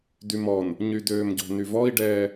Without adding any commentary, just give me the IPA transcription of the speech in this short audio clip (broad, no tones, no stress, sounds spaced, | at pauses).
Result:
d y m ɔ n | ɲ y d øː m ɟ ɔ̤ n y v ɔ i̯ ɖ ɛː